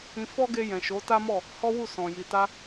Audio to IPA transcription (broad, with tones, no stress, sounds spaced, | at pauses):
ĩ˧ f ɔ˦ ɡ e˧ j ɛ̃˨ ʃ o˨˦ t a˦ m ɔ˦˨ | h ɔ˦ w u˦˨ s ɔ̃˨ j i˨ t a˧